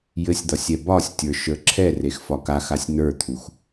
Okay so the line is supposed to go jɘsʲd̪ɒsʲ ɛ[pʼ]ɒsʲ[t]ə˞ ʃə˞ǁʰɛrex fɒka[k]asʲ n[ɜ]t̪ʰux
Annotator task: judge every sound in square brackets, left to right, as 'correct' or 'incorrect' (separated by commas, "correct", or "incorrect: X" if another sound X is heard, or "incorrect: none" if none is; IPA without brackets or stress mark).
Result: incorrect: b, incorrect: tʲ, incorrect: x, incorrect: ə˞